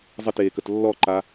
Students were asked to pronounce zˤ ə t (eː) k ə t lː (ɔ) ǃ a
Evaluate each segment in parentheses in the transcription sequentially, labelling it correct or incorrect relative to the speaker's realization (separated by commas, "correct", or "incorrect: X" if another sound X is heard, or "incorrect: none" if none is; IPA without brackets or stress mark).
correct, correct